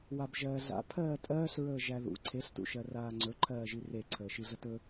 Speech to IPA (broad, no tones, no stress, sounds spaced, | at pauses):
w a b ʒ ɜː ɮ a̰ pʰ ɜː tʼ ɜː ɬ ɹ əː ʒ æ ð ṵ ǀʰ e ɬ t ṵ ʃ ɜ r aː ŋ͡ǀ ɵ ǃʰ ɜː ʒ i r e ǀʰ əː ʃ i ɮ ə t ɵ